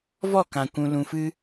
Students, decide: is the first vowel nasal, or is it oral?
oral